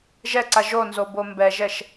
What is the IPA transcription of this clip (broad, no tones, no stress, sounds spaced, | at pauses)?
ʒ ɛ ǀ a ʒ o n z o b o m b ɛ ʒ ɛ ʃ